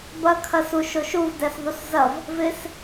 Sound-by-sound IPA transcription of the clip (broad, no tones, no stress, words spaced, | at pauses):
bɐ kʰɐsuʃoʃuv dɛsðˤuszɐv | vɪs